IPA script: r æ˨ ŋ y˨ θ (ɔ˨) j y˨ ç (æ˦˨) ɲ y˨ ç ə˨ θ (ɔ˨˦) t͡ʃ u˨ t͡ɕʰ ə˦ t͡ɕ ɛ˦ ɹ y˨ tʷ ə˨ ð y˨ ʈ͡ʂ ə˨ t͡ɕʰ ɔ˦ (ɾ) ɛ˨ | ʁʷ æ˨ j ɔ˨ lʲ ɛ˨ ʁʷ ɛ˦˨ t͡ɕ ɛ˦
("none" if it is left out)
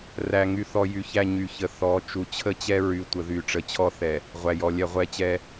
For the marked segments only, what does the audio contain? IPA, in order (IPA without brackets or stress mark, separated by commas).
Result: ɔ˨, æ˦˨, ɔ˨˦, θ